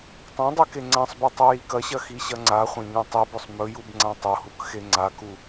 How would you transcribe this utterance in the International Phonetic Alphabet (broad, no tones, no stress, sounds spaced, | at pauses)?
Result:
tˤ ã dˤ ʉ k e ŋ͡ǀ ã sˤ b u tˤ u j i k ɐ ɕ ɐ x i ɕ ɐ ŋ͡ǀ a χʷ ɐ̃ ɲ õ tˤ i b ɵ sˤ m ɵ j u b ŋ͡ǀ ã tˤ o h u k x e ŋ͡ǀ a k u